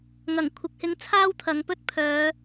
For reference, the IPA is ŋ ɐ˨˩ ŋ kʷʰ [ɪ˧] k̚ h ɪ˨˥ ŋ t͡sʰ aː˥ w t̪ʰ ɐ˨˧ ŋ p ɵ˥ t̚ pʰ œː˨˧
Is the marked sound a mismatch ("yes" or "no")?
yes